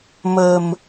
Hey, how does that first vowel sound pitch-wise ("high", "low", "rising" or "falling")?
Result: low